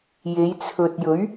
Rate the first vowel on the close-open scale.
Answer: mid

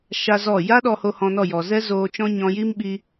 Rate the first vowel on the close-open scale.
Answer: open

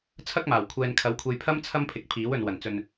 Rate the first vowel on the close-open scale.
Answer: open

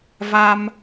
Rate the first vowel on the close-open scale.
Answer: open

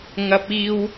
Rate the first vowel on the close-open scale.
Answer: open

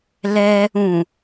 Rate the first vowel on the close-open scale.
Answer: mid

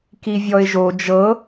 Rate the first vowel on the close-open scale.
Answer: close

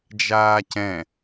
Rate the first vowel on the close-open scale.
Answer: open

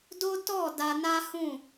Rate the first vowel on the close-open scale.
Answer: mid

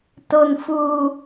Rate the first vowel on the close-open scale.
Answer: mid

